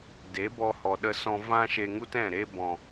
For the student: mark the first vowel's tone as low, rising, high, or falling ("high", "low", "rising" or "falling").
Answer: rising